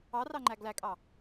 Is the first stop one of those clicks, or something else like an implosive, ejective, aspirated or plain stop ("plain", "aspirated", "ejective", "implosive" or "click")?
click